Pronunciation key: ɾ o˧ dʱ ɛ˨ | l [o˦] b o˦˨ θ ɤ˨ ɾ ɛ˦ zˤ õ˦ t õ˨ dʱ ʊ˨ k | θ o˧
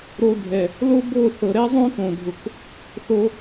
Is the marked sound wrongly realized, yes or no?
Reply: no